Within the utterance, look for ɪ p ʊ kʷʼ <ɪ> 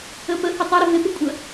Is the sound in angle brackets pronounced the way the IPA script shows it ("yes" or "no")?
no